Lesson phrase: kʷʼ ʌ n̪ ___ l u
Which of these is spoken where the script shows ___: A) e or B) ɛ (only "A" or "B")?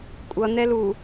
B